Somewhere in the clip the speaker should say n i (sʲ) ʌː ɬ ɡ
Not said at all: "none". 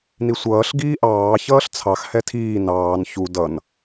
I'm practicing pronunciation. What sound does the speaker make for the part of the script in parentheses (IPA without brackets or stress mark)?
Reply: sʷ